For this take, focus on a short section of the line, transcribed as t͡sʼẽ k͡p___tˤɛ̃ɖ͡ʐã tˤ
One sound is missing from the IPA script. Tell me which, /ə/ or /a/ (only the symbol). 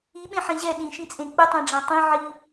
ə